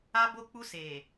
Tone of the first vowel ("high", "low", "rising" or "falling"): high